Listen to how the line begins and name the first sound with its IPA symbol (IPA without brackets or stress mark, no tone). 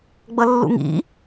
ɡ͡b